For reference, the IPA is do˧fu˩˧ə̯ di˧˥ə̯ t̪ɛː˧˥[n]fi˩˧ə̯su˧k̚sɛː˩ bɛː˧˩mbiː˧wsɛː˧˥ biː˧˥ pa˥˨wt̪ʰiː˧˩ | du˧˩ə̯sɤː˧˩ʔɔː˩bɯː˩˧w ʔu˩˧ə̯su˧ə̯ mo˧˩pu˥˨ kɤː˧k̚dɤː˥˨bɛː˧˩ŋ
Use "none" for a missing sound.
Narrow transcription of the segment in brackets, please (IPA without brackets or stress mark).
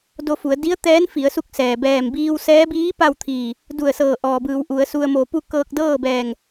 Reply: n